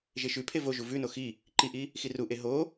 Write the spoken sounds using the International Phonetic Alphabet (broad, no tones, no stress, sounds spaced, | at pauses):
ʒ e ʃ ʉ pʰ e v o ʒ u v ʉ n o x i | ǃ i ʔ i | x i r u ʔ e ɦ o